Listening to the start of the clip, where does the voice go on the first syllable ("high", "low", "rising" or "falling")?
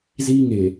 high